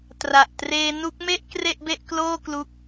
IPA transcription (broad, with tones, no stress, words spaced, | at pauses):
tra˨˩ʔtreː˧nu˦˥k̚me˥˩ʔ kre˥˩ʔbe˥˩ʔkloː˥˩ klu˦˥k̚